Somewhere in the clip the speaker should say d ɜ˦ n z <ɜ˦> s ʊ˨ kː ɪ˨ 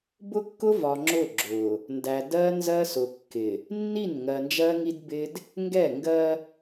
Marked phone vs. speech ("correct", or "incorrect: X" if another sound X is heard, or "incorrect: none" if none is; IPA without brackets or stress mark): correct